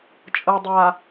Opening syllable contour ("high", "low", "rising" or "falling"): low